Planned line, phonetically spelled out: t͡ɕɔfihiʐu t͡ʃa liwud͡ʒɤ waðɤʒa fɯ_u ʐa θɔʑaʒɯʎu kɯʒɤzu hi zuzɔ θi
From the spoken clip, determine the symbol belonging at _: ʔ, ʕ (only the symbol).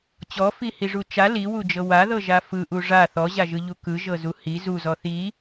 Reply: ʔ